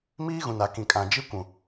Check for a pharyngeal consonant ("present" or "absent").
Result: absent